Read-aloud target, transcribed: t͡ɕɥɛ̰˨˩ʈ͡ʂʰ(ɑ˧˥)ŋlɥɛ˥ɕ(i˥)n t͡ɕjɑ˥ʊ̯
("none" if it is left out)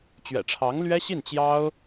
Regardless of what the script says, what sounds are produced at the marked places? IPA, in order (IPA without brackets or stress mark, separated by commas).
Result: ɑ˧˥, i˥˩